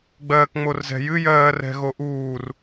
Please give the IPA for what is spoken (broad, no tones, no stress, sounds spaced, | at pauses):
ɡ͡b ɜː k ŋ͡m o r z ɛ̤ j ɨ j ɜː r ɛ̤ ɣ o ʔ uː r